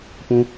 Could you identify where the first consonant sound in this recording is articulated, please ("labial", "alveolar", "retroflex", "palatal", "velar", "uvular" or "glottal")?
labial